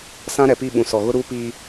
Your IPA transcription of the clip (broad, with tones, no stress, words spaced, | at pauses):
sã˦ɾɛ˨pi˦˨ɓũ˨ sɔ˨ɣʊ˦ ɾuː˦piː˦